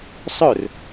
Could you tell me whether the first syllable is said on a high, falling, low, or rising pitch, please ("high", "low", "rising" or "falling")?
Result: falling